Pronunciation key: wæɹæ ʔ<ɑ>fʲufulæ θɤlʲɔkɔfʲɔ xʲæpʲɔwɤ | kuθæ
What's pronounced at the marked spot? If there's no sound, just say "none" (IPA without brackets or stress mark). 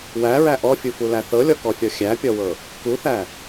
ɔ